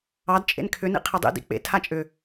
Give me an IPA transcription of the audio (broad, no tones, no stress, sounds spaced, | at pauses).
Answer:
ɑ d t͡ʃʼ ḛ n kʰ ʏ n ḭ qʰ ɛ dˤ ḭ d ḭ k͡p ḛ tʰ a t͡ʃʼ ʏ